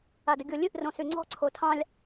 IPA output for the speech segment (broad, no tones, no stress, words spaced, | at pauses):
adəɡʲolʲɨʔ rõsyŋ͡ǀɔ̤ ǀʰotʰɑ̃lʲ